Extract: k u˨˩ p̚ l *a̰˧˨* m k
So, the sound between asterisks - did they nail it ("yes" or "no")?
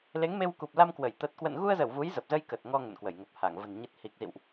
no